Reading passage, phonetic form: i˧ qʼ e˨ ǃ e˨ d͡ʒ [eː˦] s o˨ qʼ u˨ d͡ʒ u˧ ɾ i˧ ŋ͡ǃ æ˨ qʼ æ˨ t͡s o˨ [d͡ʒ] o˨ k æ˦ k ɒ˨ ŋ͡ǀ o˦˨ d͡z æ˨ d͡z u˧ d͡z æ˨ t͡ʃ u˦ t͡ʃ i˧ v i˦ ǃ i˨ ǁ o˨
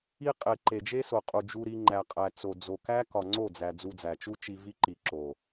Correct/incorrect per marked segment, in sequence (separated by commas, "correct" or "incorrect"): incorrect, incorrect